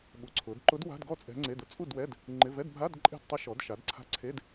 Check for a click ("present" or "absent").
present